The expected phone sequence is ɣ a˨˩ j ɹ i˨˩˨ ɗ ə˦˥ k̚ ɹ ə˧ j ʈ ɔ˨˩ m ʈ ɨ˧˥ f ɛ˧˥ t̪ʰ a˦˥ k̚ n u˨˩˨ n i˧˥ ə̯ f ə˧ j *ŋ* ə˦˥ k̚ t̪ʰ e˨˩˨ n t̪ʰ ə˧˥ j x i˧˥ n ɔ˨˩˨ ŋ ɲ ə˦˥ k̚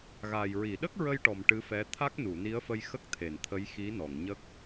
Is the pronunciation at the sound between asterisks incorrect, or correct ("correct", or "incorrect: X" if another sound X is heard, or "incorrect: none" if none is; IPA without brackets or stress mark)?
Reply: incorrect: x